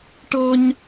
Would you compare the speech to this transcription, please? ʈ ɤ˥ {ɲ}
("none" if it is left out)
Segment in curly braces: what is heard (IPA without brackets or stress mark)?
ɲ